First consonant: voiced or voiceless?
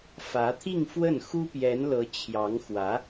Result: voiceless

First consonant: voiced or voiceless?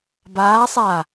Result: voiced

